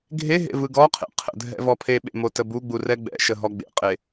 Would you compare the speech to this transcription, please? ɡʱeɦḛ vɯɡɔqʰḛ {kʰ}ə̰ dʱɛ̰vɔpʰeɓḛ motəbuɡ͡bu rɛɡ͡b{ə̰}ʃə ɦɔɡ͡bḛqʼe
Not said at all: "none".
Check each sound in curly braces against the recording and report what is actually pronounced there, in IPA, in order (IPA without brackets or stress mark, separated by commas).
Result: qʰ, ɛ̰